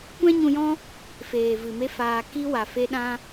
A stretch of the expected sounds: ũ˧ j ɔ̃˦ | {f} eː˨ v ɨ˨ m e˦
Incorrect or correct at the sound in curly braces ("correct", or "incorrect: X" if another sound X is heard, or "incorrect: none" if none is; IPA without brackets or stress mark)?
correct